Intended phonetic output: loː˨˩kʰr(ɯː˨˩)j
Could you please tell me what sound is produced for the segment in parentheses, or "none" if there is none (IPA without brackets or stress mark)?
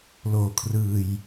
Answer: ɯː˨˩